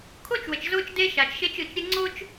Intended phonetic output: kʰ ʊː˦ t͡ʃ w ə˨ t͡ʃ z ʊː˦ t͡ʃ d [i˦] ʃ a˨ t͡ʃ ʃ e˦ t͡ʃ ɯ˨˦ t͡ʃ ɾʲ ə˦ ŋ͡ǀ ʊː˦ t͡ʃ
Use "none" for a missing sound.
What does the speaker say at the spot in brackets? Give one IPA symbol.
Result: e˦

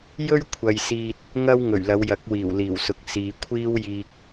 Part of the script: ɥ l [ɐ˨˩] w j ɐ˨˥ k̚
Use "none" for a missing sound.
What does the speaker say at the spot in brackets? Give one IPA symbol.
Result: ɐ˨˧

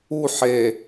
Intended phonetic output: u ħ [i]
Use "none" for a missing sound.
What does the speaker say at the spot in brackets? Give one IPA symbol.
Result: e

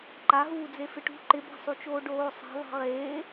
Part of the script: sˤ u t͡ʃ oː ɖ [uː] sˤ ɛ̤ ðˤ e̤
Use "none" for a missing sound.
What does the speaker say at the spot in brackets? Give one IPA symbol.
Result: oː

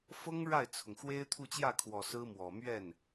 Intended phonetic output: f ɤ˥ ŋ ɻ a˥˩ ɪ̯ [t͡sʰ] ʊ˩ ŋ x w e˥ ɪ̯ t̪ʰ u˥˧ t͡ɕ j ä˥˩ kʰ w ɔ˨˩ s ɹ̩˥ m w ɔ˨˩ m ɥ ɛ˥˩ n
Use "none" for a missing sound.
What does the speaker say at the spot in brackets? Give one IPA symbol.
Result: t͡sʰ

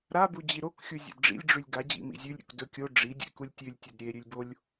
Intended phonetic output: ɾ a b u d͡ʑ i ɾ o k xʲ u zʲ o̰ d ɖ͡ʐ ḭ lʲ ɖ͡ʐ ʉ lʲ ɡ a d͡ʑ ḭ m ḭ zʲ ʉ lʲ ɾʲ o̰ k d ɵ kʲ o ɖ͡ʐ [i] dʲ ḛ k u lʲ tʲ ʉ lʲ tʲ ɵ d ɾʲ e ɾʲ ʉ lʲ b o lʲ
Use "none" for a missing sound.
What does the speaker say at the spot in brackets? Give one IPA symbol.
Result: i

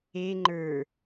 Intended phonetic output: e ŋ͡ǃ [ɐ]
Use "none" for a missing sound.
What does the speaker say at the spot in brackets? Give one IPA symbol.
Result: ə˞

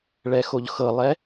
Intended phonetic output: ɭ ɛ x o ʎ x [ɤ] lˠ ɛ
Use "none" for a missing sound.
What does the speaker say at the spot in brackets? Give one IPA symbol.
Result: ɤ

